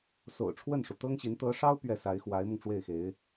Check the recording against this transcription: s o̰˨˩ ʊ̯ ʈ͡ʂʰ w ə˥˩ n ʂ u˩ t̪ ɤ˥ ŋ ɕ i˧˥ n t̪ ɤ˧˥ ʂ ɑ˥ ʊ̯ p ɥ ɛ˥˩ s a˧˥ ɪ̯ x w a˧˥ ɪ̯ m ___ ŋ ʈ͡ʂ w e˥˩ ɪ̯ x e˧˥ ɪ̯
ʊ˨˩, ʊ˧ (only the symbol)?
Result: ʊ˧